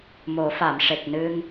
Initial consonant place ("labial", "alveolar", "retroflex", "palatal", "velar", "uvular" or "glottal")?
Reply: labial